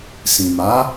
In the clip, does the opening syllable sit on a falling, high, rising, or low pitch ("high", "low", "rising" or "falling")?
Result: low